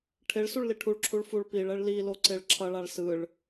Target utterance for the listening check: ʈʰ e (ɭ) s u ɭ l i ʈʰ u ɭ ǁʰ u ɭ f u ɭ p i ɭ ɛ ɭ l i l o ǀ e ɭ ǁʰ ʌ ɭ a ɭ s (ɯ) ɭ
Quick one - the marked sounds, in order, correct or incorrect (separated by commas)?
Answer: correct, correct